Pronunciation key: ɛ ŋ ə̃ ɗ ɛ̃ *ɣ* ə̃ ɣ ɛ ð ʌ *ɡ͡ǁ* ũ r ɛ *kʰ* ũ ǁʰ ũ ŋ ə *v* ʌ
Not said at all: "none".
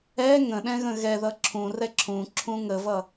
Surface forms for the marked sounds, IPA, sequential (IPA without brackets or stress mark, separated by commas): ɣ, ǁʰ, ǁʰ, v